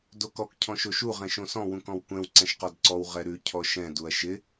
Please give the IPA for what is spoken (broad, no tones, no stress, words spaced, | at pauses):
dokɔk cʰɔ̃ʃoʃu ʁɛ̃ʃõsɔ̃ wũkɔ̃wkʷɛ̃w ǀɛ̃ʃqɔdǀɔw ʁɛɾʉ cʰɔʃɛ̃ duɐ̯ʃɪ